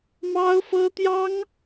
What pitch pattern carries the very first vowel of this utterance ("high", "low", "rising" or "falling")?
high